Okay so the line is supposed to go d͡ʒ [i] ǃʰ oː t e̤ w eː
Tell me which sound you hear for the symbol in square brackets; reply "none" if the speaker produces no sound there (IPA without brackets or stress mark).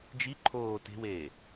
i